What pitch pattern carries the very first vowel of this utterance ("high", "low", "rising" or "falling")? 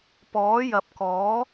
rising